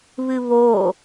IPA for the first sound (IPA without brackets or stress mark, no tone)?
β